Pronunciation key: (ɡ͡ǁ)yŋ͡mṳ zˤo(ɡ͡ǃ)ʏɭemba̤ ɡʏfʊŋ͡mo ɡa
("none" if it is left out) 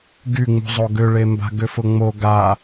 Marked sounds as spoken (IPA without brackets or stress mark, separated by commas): ɡ, ɡ